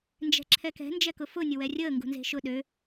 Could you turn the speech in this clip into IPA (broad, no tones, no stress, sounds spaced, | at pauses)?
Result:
n d͡ʒ ɛ̤ ǁʰ ɛ k ɛ̤ n d͡ʒ ɛ k ʊ f ʊ nʲ ʊ w ɛ rʲ əː ŋ ɡ ṳ n z e̤ ʃ ʊ ɗ ø